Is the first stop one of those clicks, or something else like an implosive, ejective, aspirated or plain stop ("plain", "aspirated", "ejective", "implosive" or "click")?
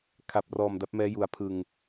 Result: aspirated